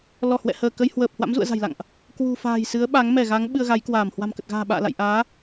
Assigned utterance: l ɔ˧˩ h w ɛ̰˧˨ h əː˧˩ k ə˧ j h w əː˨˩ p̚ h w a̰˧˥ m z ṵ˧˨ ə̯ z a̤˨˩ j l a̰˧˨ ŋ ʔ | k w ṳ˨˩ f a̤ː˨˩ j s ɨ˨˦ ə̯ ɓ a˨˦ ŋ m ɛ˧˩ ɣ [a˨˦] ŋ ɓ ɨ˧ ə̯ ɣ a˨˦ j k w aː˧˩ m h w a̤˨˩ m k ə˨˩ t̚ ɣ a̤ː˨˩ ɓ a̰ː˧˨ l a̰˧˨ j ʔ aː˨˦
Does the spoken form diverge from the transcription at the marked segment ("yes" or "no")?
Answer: no